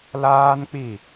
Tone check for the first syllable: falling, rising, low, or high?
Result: high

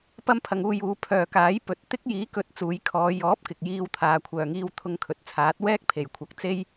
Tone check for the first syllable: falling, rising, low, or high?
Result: high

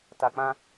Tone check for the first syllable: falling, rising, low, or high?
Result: low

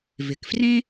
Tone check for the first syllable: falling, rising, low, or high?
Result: low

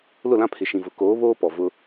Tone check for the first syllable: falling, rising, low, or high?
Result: falling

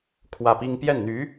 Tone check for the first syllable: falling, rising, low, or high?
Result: falling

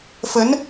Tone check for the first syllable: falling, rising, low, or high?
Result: rising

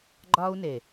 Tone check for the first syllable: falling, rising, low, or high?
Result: high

